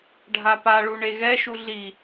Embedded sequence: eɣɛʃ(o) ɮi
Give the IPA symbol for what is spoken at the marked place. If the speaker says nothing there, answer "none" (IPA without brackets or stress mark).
u